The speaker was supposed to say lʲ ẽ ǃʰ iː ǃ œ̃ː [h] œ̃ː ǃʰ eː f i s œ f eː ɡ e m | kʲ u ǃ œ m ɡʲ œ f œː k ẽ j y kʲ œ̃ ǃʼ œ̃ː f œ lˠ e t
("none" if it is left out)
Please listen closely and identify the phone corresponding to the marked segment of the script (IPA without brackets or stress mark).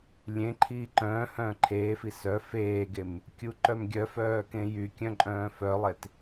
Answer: h